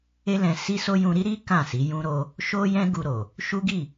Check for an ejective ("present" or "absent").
absent